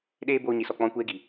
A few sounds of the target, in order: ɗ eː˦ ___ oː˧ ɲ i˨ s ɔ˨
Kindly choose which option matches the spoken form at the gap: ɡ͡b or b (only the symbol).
b